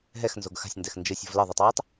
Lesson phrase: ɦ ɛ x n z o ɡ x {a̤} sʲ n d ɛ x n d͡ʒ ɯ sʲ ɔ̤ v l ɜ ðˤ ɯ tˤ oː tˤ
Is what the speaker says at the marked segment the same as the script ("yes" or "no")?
yes